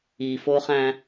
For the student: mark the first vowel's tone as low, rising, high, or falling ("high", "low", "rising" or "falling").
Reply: low